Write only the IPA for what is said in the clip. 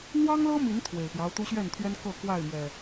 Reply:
n̪ w ɑ˦ ŋ l ɤ˦ m i˨˦ n t̪ʰ w e˨˩ ɪ̯ p j ɑ˦ ʊ̯ t̪ u˦ ɕ ɥ ɛ˥˨ n t̪ʰ ɥ ɛ˦ n k ɤ˥˨ k w a˥˨ ɪ̯ m ɥ ɛ˨˩

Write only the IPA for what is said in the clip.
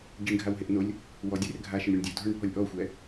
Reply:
ɟ i ɳ ɡʱ a w ɦ e ʔ n o lʲ | w ɔ dʲ e r ɡʱ a ʃ ɪ ɳ ɾʲ u ɳ dʲ o dʱ ɔ ɳ bʱ ɔ lʲ ʔ ɔ xʷ ɛ

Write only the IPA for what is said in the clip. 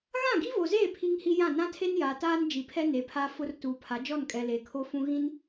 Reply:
ɣ ã˦˨ ɡ i˦ v o˨ z eː˦˨ pʰ i˦ ŋ h i˦ j ã˦˨ n ã˦ tʰ e˦ n j aː˨ t aː˦ n d͡ʒ i˨ pʰ ɛ˦ n e˨˦ pʰ a˦ f ʊ˦ r t uː˨ pʰ a˨˦ d͡ʒ ɔ˦˨ n kʼ ɛ˨ l eː˨ kʰ o˦ f ũ˦ ɣ ĩ˦ n

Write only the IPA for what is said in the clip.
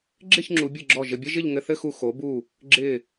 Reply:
ɡ͡ǁ ɪ˥˧ ç ŋ͡ǁ u˩˧ bʲ ɨ˧˩ ɡ͡ǁ ɔ˧˩ ʒ ɘ˧ bʲ ɘ˥ ʒ ɪ˥˧ ʎ ŋ ɘ˧ θ ɘ˥˧ x u˧˩ x o˩˧ b u˧˩ | ɡ͡ǁ ɪ˧˩

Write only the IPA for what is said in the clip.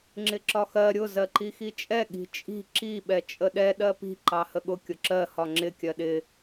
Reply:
ŋ͡ǁ ɪ ǁ ɒ x ɜ ɾʲ ʊ z ɜ ǃ i x i t͡ʃʼ ɛ ɠ i̤ t͡ʃʼ i̤ ǁ i ɓ ɛ t͡ʃʼ ə ɗ ɛ ɗ ɜ p i̤ ǃ ɑ h ə ɠ ʊ kʲ ʊ ǁ ɜ h ɒ ŋ͡ǁ ɪ kʲ ɜ ɗ ɪ

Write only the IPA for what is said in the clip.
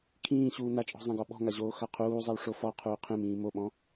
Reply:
kʰ ĩː ɕ uː n a t͡ʃʼ ɔ̤ zˤ ẽ ɡ ɔ ɓ ɔ̤ ŋ a ʑ oː x a qʰ uː zˤ ɛ w ʂ o f ɔ qʰ uː qʰ ẽ m ĩː m o ɓ ɔ̃

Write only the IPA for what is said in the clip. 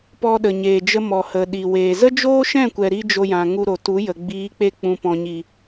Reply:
p ɔ˧ ɗ ə˨ ɲ eː˨ d͡ʒ ə˧ m ɔ˨ h ə˨ ɗ i˨ w eː˨ z ə˦ d͡ʒ oː˦ ʃ ɛ̃˦˨ kʷ ɛ˨ ɾ i˦ d͡ʒ o˧ j ã˨ ŋ u˧ ɾ o˨ t u˨˦ j ə˨ ɡ͡b iː˨˦ k͡p e˧ k͡p ũ˨ p ɔ̃˨ ɲ i˨

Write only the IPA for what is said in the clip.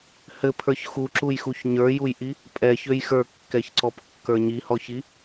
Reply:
h ɘ pʰ ə˞ ç x u ǁ u j x u ç ɲ ə˞ j u j ʔ i | pʼ ɛ ç ø j x ə˞ kː ɛ ç ǀ ɔ p kː ə˞ ɲ i h ɔ ç i

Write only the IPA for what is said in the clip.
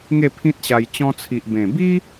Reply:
ŋ e˥˧ pʰ ĩ˦ t̚ ɕ a˧ j t͡ɕ ɔ̃˧ t͡sʰ i˨ ʔ b ẽ˨˩ b i˦

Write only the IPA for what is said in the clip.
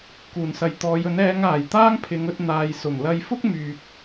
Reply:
k uː˨˩ n s ɐ˨ j t̪ ɔː˨˧ j ɵ˨˥ n ɛː˨˧ ŋ aː˨˩ j t̪ aː˥ ŋ pʰ ɪ˨˧ ŋ ɵ˧ t̚ n̪ aː˨ j s ʊ˨˩ ŋ l ɐ˧ j f ʊ˥ k̚ m yː˨ p̚

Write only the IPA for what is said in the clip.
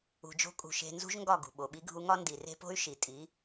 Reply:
ṳ˧ d͡ʒ o̤˦ kʼ ṳ˧ ʃ e̤˧ n z ṳ˦ ʒ ŋ ɡ ɒ˦˨ ɡ ṳ˨ ɓ o˨ ɓ i˧ ɡʱ u˧ ŋ ɒ˦ n d i˨ r e̤˦ p o̤˦ y̯ ʃ i˨ tʼ i˨˦

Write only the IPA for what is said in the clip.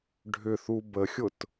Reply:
ɖʱ ʏ θ u b ə xʲ ʊ t

